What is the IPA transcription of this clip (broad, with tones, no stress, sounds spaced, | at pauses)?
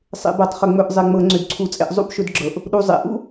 sˤ ḛ˧˩˧ b ɤ˧˩˧ tˤ χ ʏ˧˩˧ ŋ͡m ɵ˧˩˧ ʔ zˤ e˨˩ ŋ͡m ɤ˧˩˧ ŋ͡ǀ ʏ˧˩˧ d ǀʰ u˧˩˧ t͡sʼ ḛ˧ ʔ zˤ ṵ˥ b ʃ ɵ˧ d ɡ͡ǁ ɤ˨˩ ʔ | ɗ u˨˩ zˤ ḛ˨˩ ʔ ṵ˥